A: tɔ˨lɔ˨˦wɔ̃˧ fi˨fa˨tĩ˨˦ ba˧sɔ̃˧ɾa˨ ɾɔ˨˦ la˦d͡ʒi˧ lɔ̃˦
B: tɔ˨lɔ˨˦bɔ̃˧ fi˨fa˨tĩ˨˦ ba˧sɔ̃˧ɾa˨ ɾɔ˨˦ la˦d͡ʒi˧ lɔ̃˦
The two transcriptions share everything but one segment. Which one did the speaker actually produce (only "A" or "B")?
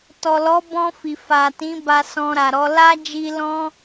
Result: B